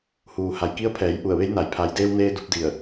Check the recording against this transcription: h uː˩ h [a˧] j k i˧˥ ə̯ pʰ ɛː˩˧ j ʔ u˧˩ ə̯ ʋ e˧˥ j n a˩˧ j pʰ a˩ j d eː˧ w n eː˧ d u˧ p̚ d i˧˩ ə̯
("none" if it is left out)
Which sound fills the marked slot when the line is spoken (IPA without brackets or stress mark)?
a˩